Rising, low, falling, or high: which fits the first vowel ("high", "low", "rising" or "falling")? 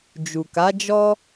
low